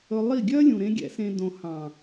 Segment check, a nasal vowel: present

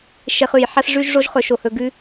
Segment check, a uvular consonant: present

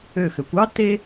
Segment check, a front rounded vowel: present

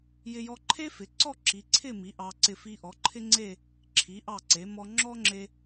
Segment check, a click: present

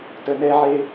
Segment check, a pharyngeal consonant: present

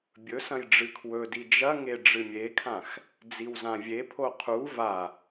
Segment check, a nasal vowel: present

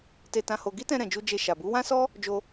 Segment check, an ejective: absent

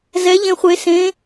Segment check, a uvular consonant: present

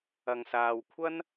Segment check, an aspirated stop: present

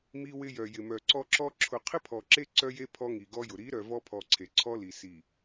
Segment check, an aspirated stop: present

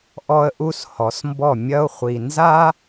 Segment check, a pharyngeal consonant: absent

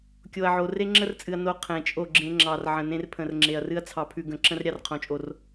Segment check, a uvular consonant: present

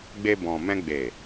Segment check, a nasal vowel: present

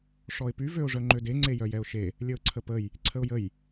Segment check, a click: present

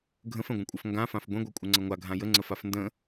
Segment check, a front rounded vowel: absent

